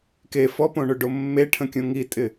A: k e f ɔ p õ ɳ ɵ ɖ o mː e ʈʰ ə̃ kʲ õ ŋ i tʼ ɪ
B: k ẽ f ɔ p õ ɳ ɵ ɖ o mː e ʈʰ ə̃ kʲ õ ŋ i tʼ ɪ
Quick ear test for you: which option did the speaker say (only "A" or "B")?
A